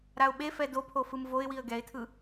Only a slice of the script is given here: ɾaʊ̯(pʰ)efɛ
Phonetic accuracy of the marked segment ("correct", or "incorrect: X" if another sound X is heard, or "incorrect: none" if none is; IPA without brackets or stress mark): incorrect: ɓ